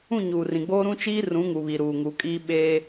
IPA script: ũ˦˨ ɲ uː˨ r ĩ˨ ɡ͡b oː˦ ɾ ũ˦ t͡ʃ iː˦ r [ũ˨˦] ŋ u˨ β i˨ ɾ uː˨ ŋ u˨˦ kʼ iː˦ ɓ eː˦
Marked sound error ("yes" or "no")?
no